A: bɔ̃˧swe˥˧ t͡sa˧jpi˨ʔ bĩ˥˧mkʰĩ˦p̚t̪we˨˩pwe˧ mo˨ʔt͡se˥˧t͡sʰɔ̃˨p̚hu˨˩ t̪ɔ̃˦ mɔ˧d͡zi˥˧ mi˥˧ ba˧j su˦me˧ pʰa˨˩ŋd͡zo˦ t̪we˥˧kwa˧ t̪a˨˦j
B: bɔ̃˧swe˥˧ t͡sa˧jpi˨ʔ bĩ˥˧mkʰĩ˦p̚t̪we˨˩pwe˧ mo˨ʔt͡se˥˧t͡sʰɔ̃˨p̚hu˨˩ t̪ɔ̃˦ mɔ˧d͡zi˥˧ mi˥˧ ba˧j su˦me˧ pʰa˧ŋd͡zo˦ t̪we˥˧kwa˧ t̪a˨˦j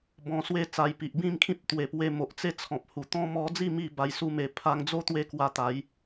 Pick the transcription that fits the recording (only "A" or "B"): B